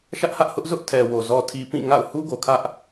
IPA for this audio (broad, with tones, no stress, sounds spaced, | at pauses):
ʃ ä˦ ʔ h ä˦ ʔ h ʊ˦ ʔ z ʊ˦ ʔ tʰ ɛ˨ w o˨ z ɔ˨ tʰ i˨ p ĩ˦˨ ŋ a̰˦˨ ʊ̯ h u˦ ɡ o˨ kʰ ä˦ ʔ